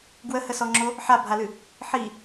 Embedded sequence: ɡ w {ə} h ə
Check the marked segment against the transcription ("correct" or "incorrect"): correct